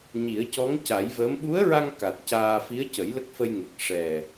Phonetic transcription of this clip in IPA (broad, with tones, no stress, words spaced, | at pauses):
ɲi˨˩˦ə̯cɔ˧˥ŋca˨˩˦jvəː˧˥m ɓu˧˥ə̯ɹa˧ŋ ka˨˩t̚caː˧ fi˧˥ə̯cə˨˩˦jlə˦˥k̚ fə˧jŋe˨˩k̚ ʂɛ˨˩